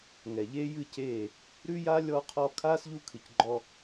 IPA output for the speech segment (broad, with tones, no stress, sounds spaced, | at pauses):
ŋ ɛ˨ ʎ eː˦ j ɨ˦˨ c eː˦˨ | ɾ ʉ˧ j a˧ lʲ ɔ˧ qʰ ɔ˧ kʰ aː˦ s ʎ u˧ kʰ ɨ˨ c ɡ͡ǃ ɔ˧